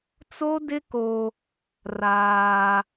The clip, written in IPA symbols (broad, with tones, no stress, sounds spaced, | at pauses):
t͡s o˦ d ɪ˦ k o˦ | r aː˦